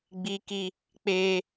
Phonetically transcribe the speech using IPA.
ɡ͡bi˦ki˦ | k͡peː˦

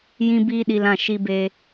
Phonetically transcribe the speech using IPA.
jĩ˦ biː˦ɗi˧lã˦˨ ʃi˧be˧

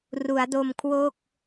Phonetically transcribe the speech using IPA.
ru˩˦a̯do˧mkʰwo˥˩k̚

